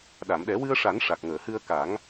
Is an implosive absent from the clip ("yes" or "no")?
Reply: no